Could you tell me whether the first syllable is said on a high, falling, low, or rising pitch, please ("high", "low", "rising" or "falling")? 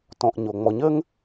low